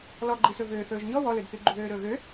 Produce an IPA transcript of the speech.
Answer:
lɔɡ͡ǃisɵ vøːθɵːʒɲɔ wɔlɵdθy ɡ͡ǃuðøːɾɵːɣø

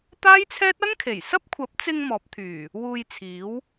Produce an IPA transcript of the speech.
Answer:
t̪aː˥jt͡sʰɛː˥t̚ ɐ˥ŋkʰe˨˩jsɐ˥p̚ kʷʰɐ˨˥p̚t͡sɪ˧ŋ mɔː˨˥p̚t̪ʰyː˨˩ | wuː˧jt͡sʰiː˨˥w

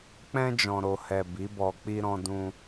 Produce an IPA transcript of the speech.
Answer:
k͡pɛ̃˧d͡ʒɔ̃˨ɾo˨ hɛ˨ bi˨˦bɔ˧ k͡pi˧ɾɔ̃˧dũ˧

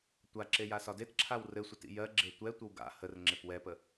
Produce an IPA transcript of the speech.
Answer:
tʷaǁe jasɒdetǁʰaw rɘsʷet ḭjɜɡ͡ǁe tʷɛtʷəw ɡa̰ hərŋ͡ǁep wɛpə

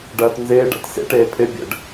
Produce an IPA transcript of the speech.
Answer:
ɖɐːtnzɪː ɖa̰tsḛʈ eːpʰɪ bʲə̰ɖ

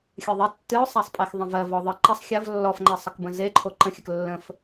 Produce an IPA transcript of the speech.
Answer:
xʲɨðˤɛ tːɨʊ̯sˤæsˤpʼexðˤə̃ vɜvɔ ðˤɨ ǃɐsˤ xʲɐv lːɔfŋ͡ǃɛsˤəkbə̃ zeǃʰo ǃə̃xʲək lːə̃f

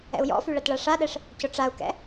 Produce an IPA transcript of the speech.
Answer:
ɛ̰u̯jɔ̰fy ɭɐtɭaʂaɗɛʂ | cʊʈ͡ʂau̯kɛ̰

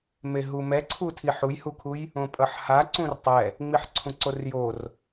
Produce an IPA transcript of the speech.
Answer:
meɦumɛǀʰu tʰiħujhukʰuj | õpʼʌħhaǀũr tˤɛ | ŋ͡miħǀʰũǀorjor

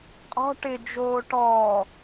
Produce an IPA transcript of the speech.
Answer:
qʼɔ̤ ʈɪ d͡ʒoːʈɔː

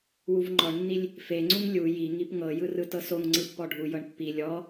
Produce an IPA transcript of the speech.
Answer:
wuvŋ͡ǃɔɳnːilʲ | feŋ͡ǀuŋ lʲu ji ŋipŋɤ jɯrɯtɤsoŋ ŋ͡ǀɯpːɔɖʱu jɤɳpːi lʲɔ

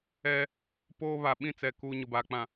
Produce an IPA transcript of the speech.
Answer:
ɛ˦ | poː˦ βa˨ɓĩ˦˨t͡sɛ˨ kuː˨ ɲʊ˨baː˨k͡pã˨

